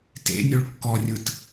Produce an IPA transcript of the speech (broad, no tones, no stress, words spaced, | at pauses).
tḛnʲoɭ kːɔrʲɯt